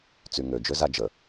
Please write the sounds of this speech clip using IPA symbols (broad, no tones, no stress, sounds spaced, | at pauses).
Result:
t͡s y ŋ ø d͡ʒ ø z a d͡ʒ ə